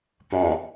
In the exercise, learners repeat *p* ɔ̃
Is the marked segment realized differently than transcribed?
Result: no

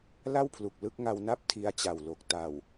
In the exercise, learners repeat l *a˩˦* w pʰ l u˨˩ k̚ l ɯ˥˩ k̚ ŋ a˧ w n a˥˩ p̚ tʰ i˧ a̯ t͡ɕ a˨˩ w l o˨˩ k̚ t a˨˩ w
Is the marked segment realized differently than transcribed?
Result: yes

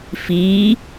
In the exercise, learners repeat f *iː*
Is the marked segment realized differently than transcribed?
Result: no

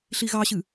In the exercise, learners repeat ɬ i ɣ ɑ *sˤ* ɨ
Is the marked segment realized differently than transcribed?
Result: yes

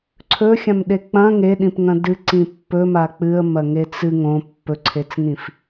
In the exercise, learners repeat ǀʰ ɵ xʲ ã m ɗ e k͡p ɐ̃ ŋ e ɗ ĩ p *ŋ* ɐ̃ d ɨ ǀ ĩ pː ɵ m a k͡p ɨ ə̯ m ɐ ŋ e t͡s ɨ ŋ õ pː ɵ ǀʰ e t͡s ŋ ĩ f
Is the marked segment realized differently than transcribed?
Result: no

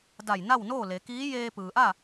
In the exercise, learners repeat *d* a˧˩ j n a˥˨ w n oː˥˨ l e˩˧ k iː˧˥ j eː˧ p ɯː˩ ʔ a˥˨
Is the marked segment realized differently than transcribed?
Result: no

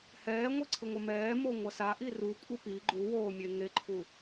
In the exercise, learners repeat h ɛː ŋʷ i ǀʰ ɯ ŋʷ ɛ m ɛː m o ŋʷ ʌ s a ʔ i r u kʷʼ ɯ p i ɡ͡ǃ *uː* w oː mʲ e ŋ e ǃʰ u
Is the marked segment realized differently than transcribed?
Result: yes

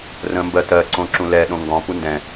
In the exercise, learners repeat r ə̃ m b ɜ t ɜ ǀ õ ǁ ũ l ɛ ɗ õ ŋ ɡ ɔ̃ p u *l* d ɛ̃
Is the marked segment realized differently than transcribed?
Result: yes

